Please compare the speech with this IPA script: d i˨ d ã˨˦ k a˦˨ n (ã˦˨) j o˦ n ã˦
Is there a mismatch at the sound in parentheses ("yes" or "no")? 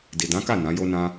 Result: yes